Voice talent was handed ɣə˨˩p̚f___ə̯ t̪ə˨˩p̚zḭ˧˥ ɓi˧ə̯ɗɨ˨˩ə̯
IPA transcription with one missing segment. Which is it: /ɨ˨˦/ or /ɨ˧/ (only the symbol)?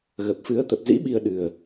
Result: ɨ˨˦